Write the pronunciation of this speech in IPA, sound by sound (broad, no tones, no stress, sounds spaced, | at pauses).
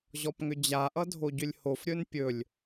ʑ ɔ p ŋ ʏ d͡ʑ a ʔ ʌ dʱ o ɟ ʏ lʲ h o f ɾʲ ɵ n pʲ ɵ lʲ